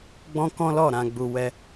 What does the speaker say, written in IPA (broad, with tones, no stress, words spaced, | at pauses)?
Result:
ɡ͡bɔ̃˦kɔ̃˦lɔ˦˨ ɾã˧ɡ͡bu˧ wɛ˧